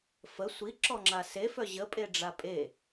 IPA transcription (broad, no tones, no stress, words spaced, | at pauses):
fə sʷiǁɔŋ͡ǁa sefœ ʑəpʼeɖ͡ʐa pʼe